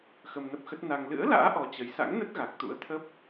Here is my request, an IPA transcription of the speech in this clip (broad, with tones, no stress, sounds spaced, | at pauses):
x ə˧ m n ə˦˥ p̚ x ə˦˥ t̚ n a˧ ŋ l ɨ̰˧˥ ə̯ l a̰ː˧˥ ʔ ɔ˨˦ t͡ɕ ə˨˦ j s a̰˧˥ ŋ n ə˦˥ t̚ ɣ a˨˩ k̚ t̪ ṵ˧˥ ə̯ t̪ʰ ə˦˥ p̚